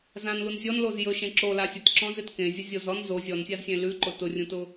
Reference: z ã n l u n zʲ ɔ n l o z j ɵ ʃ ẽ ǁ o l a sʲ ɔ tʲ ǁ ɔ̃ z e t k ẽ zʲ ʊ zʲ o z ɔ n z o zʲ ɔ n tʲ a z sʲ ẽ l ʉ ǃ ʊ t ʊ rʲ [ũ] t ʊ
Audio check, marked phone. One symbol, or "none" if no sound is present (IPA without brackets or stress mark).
ũ